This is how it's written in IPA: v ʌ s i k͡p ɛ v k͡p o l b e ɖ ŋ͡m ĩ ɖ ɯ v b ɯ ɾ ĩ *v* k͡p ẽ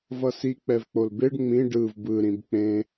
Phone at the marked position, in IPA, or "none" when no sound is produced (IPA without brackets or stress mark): b